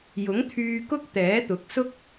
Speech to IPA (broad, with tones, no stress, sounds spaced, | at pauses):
j ʊ˨˥ ŋ t̪ʰ yː˧ k ʊ˥ k̚ t̪ ɛː˨˥ t̪ ʊ˨˥ k̚ s ʊ˥ k̚